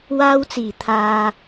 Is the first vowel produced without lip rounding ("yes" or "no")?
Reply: yes